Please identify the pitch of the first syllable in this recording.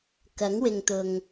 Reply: rising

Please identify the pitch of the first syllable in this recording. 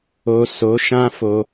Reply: low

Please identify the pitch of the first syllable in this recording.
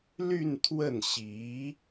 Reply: falling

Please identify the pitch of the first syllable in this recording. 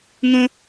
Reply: high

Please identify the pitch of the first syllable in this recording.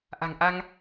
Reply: low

